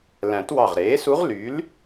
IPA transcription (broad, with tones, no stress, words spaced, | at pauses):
læ̃˨˩˦twɑ˧˩ʁɾeː˩˥su˧˥ʁ ly˩˥l